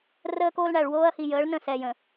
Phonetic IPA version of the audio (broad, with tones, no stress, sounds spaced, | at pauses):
r əː˦ k oː˦ l ɳ æ˨ ɭ w oː˦ ɐ̯ h i˨ j əː˨˦ ɭ n ə̃˦˨ s ɛː˨ j ə̃˨